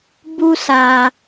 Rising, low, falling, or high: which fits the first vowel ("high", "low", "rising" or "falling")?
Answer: high